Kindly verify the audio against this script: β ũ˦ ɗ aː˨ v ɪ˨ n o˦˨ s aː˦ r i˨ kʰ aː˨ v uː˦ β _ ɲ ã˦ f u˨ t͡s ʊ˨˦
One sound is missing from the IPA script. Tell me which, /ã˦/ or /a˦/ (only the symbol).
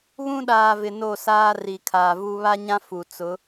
a˦